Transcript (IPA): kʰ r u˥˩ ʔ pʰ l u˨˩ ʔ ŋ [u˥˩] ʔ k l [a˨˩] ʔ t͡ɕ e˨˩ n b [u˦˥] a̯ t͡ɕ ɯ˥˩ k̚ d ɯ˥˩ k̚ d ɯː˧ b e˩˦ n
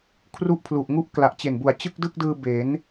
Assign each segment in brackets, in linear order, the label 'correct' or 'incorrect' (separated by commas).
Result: correct, correct, incorrect